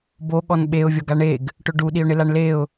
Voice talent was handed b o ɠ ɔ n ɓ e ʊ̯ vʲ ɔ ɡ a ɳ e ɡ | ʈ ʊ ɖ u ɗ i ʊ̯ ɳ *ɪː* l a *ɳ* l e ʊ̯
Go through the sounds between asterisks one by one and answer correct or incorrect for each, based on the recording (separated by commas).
incorrect, correct